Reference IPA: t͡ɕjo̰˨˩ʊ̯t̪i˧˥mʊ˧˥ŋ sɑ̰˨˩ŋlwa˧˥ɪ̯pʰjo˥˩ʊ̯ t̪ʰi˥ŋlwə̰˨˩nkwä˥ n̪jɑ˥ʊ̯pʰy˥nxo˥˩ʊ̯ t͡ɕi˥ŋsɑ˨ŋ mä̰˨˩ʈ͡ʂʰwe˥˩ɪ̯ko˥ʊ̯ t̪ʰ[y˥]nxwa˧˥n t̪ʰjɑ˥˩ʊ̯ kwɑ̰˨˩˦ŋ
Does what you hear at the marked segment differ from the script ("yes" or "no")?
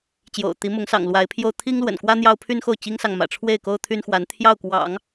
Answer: no